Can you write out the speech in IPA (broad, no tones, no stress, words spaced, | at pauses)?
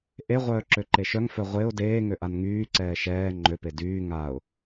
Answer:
ʔeʁʷœː ǁøǃeʃœŋfœ ʁʷeʊ̯ deːŋø ʔanŋyːǀɛː ʃɛː ŋ͡ǃøpe dyː ŋaʊ̯